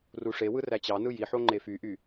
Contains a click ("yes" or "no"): yes